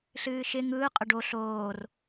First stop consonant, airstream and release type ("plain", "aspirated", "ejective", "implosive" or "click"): ejective